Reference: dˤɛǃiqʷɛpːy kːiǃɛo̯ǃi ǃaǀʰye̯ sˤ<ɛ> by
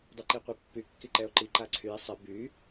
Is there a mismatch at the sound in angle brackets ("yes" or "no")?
no